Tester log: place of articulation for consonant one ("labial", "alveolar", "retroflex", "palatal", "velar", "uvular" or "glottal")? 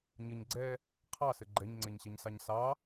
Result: palatal